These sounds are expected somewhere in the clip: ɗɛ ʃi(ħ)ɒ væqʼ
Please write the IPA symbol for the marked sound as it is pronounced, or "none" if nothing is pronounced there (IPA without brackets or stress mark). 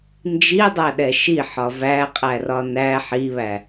ħ